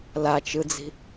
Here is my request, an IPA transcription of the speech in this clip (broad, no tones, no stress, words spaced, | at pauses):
lat͡ʃɯd͡zi̤